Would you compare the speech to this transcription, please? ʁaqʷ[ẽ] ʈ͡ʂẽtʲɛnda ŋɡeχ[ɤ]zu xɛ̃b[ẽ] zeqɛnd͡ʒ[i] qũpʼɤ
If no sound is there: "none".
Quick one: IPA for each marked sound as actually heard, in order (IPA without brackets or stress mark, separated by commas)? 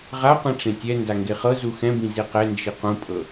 ĩ, ɤ, ĩ, i